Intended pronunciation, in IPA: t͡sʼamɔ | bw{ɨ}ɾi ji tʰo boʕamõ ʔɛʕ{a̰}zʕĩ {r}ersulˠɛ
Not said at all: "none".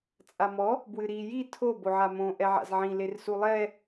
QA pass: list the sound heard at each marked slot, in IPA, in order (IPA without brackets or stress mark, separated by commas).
ɨ, a̰, l